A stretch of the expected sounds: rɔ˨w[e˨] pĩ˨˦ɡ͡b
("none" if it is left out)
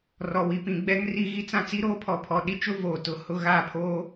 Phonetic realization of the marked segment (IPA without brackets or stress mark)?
i˨